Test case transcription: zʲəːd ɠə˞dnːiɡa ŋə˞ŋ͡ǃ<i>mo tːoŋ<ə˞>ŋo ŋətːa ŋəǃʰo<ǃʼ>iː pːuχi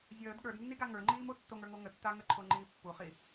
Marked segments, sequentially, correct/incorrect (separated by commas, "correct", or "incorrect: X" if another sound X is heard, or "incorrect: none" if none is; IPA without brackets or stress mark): incorrect: iː, correct, incorrect: ŋ͡ǃ